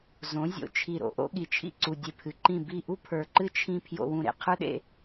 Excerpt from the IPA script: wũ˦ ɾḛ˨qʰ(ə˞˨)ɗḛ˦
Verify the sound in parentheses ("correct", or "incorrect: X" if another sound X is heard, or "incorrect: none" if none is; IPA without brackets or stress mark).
incorrect: ə˞˦